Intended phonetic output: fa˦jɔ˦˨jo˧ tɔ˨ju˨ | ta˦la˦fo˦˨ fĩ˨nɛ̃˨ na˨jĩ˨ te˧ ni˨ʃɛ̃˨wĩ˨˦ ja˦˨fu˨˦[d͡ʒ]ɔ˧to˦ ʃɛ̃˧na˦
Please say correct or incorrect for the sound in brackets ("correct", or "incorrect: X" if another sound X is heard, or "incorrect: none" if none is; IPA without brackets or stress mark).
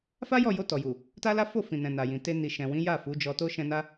correct